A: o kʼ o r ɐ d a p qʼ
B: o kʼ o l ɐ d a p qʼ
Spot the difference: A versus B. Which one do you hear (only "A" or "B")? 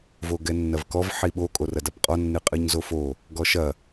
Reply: A